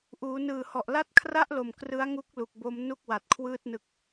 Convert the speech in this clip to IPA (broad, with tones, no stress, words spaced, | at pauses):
ʔuː˩˦nɯː˨˩hɔ˨˩ʔ la˦˥t̚kʰra˥˩ʔlo˨˩m krɯ˦˥a̯ŋu˦˥k̚ lu˨˩k̚bo˦˥m nu˥˩k̚ wa˨˩t̚kʰwɯː˥˩t̚ nɯ˦˥k̚